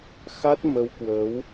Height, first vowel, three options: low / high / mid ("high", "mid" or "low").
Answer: low